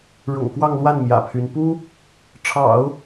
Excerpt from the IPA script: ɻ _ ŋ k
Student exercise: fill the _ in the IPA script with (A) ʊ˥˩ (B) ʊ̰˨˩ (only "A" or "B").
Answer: B